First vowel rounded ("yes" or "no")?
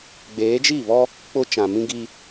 no